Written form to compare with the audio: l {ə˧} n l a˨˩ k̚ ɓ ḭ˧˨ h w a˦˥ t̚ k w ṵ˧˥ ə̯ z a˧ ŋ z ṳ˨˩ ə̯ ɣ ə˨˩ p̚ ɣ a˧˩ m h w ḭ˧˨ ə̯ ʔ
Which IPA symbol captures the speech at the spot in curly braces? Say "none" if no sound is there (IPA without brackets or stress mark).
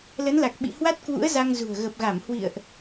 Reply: ə˨˦